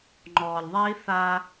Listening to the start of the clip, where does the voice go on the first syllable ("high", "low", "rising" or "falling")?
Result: low